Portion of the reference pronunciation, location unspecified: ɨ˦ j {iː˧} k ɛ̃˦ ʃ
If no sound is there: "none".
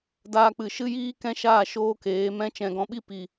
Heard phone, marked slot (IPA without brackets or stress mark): iː˦